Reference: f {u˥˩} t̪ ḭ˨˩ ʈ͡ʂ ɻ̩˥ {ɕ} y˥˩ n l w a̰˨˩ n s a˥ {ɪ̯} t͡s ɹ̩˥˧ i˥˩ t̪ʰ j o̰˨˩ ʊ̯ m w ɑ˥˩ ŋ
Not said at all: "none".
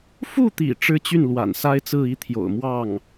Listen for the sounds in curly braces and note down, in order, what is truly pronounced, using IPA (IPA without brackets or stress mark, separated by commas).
u˥˩, t͡ɕ, ɪ̯